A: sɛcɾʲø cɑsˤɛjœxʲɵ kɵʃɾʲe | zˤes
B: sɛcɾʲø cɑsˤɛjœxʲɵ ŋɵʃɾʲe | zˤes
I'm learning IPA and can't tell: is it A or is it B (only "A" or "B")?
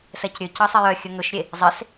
B